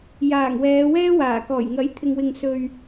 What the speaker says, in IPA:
j aː˨˩ ŋ w ɛː˨˧ w ɛː˥ w aː˨˩ k ɔː˨˩ j ŋ ɐ˨˥ j t̪ʰ ɪ˨ ŋ w ɪ˨ ŋ s ɵ˨ ɥ

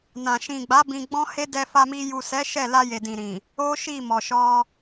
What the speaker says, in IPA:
n ã˨ ʃ ĩ˨ ɡ͡b a˨˦ b ĩ˧ ɡ͡b ɔ̃˦ h e˦ d ɛ˧ f a˧ m i˧ j u˨ s ɛ˨˦ ʃ ɛ˦˨ l a˧ j e˨ d ĩ˨ ɾ ĩ˨ | o˦ ʃ i˦˨ m ɔ˨ ʃ ɔ˧

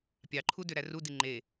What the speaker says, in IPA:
pʲ ɑ ǃʰ u d ø ɾ æ r u d i ŋ͡ǃ e

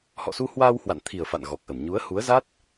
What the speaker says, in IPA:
h ɔ̰˧˨ s u˧ h w aː˧ w h w a̰˧˨ n t̪ʰ i˨˩ ə̯ f a̰˧˨ n ɣ ɔ˨˩ k̚ ʔ ə˧˩ m ɲ u˨˦ ə̯ h u˨˦ ə̯ z a˦˥ t̚

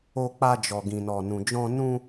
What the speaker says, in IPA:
o˧ k͡p a˧ d͡ʒ ɔ˨ ɡ ĩ˨ n ɔ˨ n ũ˨ d͡ʒ ɔ̃˧ n ũ˧

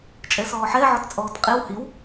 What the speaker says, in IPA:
t͡ʃʼ ɛ s ɔː ħ ɛ ʕ ɔ t t͡sʼ ɔː t qʼ e w h i w

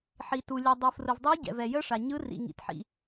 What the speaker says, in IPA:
ħ i˩ t u˩ lʲ ɛ˩ dˤ ɯ˩ f r ʊ˩ v dˤ əː˧˥ ɟ ɛ̰˩ v ɛ˩ j ə˧˥ ʂ a˩ ɲ ɯ˧˥ r ḭ˩ ŋ ḭ˩ t ħ ḭ˩

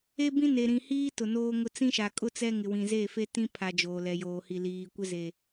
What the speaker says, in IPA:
e˦ b ĩ˦ n e˨ ɾ ĩ˨ h iː˦ t ʊ˨ n oː˦ ŋ ʊ˦ t͡s ĩ˦ ʃ a˨ kʼ ʊ˦ t͡s ɛ˦ ŋ ɪ˨ w ĩ˨ z e˦˨ f e˦ t ĩ˦ pʰ a˨ d͡ʒ oː˨ l ɛ˨ j oː˨ h i˨ l iː˨ kʷ ɪ˦ z e˨

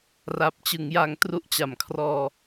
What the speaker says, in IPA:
r a˨˩ p̚ t͡ɕ ɯ˩˦ ŋ j a˧ ŋ t r u˦˥ ʔ t͡ɕ a˩˦ m kʰ r ɔː˧

